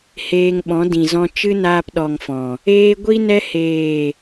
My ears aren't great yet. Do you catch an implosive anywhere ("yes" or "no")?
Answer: yes